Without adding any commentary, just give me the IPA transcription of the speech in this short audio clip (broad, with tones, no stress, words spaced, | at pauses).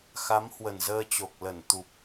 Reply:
xa˨˦mhwə˨˩nzəː˧t͡ɕo˨˩k̚ lə˧˩nt̪u˨˩p̚